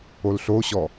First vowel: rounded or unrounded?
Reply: rounded